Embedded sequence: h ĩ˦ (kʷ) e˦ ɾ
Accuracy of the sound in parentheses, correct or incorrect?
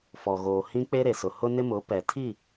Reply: incorrect: k͡p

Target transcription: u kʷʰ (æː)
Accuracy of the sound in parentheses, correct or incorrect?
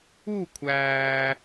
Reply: correct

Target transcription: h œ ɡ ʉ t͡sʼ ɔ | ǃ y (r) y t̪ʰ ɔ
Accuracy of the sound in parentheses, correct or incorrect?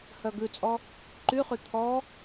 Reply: incorrect: χ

